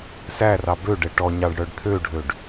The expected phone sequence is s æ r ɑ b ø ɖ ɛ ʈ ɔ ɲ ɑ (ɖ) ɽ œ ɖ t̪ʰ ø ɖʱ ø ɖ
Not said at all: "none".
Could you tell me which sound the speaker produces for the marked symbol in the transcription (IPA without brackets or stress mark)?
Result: ɖ